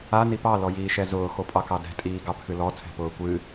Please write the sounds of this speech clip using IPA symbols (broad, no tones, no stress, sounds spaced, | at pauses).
a n i p ɑ l ɔ j iː ʃ ɛ z ʊː x o pʼ ɑ k ɑ d ɛ̤ tʼ iː ɡ ɑ pʰ ɨ l ɔ tʰ ɛ̤ p ʊː kʷ ɨ